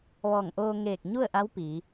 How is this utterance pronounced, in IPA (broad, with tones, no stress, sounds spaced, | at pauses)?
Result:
ʋ ɔː˧˩ ŋ ʔ oː˧ ŋ eː˧˩ k̚ ɲ u˥˨ ə̯ ʔ a˧˥ w p iː˩˧